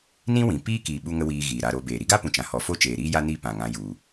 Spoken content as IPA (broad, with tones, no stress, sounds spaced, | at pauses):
n ĩ˦ w ĩ˨ p iː˦ k i˨ ɓ u˦ ŋ ə˦ w iː˧ ɣ iː˨ ɾ a˧ ɾ o˧ b eː˨ ɾ i˧ ɡ a˦ p ũ˨ t͡ʃ ã˨ h ɔ˨ f o˦ t͡ʃ eː˨ ɾ iː˦ j a˦ n i˦˨ p ã˨ ŋ ã˧ j u˨